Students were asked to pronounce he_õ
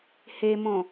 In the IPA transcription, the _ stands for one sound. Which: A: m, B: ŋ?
A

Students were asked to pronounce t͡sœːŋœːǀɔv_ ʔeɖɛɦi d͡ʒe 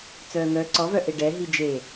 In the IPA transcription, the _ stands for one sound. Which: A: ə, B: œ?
B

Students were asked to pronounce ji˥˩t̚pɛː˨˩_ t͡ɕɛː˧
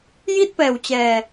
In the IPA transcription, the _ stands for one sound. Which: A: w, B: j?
A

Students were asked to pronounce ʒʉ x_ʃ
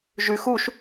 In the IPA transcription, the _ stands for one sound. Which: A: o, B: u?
B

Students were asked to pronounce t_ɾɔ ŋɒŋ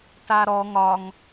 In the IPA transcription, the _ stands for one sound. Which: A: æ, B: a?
B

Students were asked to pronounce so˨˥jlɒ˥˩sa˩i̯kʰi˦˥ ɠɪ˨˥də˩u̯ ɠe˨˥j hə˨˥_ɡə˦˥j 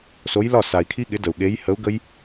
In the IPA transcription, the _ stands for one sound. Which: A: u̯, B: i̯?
A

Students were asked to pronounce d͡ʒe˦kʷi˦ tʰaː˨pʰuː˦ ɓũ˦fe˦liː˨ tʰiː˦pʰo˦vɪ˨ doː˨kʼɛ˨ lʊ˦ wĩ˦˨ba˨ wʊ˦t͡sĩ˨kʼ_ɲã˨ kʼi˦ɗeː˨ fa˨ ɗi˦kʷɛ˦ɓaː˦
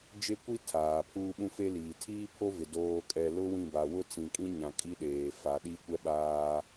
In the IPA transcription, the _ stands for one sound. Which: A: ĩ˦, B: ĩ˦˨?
A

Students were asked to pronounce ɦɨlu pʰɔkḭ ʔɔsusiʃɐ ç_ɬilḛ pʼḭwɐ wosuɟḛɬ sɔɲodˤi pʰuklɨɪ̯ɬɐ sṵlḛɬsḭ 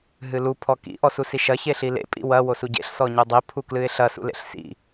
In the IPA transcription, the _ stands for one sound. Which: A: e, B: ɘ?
A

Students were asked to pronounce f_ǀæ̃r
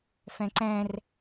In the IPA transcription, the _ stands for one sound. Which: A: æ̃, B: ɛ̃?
A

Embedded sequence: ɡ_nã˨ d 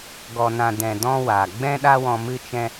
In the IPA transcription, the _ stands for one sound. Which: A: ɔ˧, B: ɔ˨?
B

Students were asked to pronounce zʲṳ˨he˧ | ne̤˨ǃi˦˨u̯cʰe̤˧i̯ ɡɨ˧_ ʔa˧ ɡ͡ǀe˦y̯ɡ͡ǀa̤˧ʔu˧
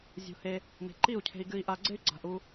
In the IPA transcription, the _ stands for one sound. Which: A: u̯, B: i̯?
B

